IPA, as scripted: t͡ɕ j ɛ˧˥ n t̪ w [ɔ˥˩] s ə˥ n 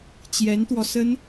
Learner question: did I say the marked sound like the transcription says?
no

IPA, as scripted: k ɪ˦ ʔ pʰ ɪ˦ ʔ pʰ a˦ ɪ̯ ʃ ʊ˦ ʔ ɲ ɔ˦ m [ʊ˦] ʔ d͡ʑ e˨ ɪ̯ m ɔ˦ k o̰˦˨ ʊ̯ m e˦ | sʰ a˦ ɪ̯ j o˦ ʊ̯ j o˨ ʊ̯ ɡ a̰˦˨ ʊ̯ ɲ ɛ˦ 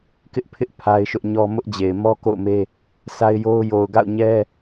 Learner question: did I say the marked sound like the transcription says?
yes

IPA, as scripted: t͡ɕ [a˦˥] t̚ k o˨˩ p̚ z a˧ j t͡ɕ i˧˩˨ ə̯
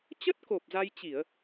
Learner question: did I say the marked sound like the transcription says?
no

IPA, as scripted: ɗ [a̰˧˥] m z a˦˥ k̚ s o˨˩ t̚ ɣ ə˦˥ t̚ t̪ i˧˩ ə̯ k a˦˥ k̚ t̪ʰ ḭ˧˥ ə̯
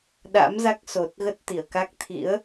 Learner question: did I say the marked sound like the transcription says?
yes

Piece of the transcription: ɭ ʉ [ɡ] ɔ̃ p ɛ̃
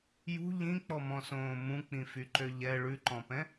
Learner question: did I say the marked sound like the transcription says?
no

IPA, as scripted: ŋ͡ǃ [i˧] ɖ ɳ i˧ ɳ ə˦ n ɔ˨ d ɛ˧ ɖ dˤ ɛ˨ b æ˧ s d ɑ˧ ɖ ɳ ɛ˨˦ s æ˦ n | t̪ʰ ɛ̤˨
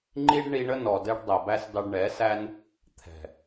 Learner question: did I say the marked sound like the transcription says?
yes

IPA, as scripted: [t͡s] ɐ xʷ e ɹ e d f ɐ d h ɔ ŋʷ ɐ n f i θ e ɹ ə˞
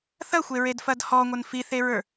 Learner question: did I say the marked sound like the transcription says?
no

